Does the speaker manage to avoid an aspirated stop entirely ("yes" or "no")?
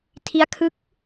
no